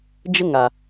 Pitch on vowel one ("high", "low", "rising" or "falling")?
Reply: high